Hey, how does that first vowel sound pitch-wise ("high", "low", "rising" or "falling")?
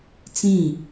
falling